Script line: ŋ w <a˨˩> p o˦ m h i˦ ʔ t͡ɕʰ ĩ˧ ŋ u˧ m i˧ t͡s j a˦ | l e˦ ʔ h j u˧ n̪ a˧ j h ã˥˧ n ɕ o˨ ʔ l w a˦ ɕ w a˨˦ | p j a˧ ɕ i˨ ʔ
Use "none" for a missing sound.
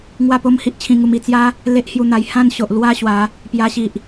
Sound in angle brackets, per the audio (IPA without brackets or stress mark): a˥˧